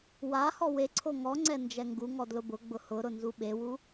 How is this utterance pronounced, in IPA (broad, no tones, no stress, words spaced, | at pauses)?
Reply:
wahɔ weǀʰo ŋɔŋ͡ǀɛ nd͡ʒɛŋɡuŋɔ dlʊbʊɡ͡bʊ hʊɾʊ nzuɓewu